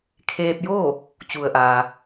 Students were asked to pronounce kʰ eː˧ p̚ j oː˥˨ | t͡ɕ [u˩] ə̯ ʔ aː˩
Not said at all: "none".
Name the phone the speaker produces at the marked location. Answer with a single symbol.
u˩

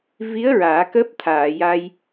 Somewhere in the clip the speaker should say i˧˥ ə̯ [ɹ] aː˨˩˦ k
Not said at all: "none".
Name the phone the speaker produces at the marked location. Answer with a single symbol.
ɹ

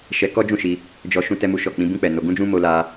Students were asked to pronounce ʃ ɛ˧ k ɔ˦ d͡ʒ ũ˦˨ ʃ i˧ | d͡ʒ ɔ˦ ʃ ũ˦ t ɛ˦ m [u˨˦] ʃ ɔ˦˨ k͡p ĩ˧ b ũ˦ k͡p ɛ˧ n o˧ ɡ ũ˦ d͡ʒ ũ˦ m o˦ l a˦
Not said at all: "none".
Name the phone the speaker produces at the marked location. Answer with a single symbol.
u˦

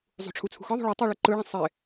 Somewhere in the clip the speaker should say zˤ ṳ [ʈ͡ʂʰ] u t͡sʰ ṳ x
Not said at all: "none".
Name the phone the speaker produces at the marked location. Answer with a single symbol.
ʈ͡ʂʰ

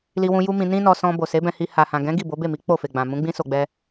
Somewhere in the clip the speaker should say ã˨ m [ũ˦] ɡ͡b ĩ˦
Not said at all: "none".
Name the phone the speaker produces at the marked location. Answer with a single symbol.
ũ˨˦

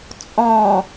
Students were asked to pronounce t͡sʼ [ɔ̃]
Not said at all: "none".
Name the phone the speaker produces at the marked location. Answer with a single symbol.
ɔ̃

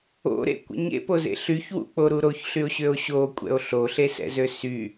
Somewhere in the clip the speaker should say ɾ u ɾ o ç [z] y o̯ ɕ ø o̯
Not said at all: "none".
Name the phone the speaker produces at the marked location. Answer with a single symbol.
ɬ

